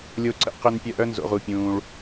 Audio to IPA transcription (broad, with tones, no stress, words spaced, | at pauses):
lʲo˧ ǀə̰˧qʏ˧n pʲœ˧ʔ œ˦nzo̰˧ʁu˧pʲũː˧ɭ